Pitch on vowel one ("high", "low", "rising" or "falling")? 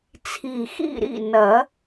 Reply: low